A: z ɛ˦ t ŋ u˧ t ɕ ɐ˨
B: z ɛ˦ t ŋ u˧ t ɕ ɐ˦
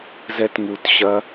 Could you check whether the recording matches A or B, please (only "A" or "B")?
B